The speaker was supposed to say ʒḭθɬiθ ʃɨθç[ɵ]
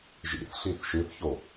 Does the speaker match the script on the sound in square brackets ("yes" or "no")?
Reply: no